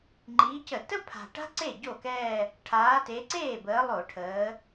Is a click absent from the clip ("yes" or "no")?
no